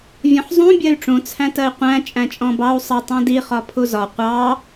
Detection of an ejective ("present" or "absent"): present